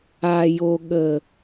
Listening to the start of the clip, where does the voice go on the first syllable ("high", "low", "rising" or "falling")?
low